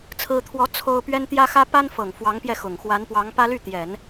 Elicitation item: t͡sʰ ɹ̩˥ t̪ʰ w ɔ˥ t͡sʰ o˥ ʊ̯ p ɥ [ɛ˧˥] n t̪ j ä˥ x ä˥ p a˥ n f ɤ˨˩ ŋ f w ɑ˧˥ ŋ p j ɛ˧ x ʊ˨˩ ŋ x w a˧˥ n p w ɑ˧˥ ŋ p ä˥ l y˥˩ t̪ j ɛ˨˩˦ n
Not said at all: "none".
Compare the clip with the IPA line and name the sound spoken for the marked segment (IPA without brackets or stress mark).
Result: ɛ˥